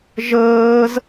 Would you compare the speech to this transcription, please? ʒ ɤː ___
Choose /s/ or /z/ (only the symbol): z